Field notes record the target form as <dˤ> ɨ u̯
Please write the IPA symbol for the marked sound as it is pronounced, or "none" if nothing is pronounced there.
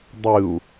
dˤ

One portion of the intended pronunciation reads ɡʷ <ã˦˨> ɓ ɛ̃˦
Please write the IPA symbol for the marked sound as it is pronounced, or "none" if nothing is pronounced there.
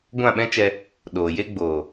ã˦˨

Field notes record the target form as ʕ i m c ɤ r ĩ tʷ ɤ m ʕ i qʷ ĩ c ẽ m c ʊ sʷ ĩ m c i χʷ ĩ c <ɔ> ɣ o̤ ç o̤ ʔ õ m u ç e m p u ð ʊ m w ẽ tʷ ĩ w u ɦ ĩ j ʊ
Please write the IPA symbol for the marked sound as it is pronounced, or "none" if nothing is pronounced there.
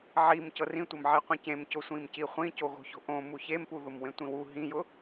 o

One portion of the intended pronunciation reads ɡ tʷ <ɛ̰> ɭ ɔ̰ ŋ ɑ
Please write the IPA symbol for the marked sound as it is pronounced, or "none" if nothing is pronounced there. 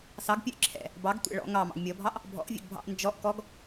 ɛ̰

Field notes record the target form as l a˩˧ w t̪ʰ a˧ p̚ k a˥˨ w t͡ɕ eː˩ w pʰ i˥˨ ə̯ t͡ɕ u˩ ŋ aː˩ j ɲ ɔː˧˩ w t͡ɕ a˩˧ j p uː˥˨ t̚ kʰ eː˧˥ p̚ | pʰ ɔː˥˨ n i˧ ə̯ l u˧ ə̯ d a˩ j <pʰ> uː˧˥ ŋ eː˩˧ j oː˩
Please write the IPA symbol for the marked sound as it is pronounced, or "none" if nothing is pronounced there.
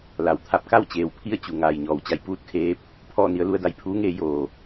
pʰ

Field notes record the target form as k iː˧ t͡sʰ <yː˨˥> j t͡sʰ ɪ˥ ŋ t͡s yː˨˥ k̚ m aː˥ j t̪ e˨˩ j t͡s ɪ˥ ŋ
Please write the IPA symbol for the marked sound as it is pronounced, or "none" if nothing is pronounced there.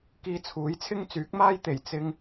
uː˨˥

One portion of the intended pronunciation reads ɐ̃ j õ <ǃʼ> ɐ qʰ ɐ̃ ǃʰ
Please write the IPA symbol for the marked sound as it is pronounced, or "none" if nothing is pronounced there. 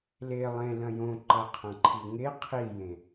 ǃ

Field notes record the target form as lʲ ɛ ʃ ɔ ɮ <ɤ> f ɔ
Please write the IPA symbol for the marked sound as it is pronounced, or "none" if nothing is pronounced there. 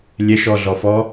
ɔ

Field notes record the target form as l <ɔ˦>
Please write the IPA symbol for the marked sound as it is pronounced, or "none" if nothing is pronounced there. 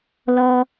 ɔ˦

